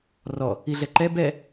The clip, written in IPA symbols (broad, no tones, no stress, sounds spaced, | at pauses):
r ɔ | i ɮ ɛ ǃ ɛ b ɛ